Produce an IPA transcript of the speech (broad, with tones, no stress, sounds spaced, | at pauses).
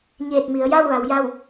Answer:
ɲ eː˧˩ t̚ m i˩˧ ə̯ j aː˥˨ w ʋ a˩˧ w j a˥˨ w